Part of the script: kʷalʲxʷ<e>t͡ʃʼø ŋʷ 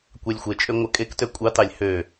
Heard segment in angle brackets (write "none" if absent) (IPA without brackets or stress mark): e